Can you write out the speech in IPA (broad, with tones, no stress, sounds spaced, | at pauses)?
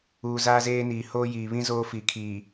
uː˨ z aː˦ z eː˦ n iː˨ h oː˦ j iː˨ β ĩ˦ z oː˦ f i˨ kʰ iː˨